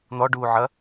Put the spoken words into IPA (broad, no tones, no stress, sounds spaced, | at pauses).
n̪ ɔ ɖ uː ʕ ɐ